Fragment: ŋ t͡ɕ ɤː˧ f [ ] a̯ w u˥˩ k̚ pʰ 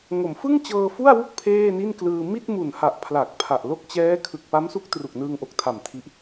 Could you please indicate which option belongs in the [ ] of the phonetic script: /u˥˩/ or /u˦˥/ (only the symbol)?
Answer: u˥˩